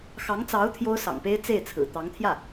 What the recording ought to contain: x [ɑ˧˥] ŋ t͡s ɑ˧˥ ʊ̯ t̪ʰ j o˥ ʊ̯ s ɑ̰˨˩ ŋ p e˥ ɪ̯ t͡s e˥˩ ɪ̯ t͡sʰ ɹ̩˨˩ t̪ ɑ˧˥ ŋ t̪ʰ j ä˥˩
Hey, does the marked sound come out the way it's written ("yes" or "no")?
yes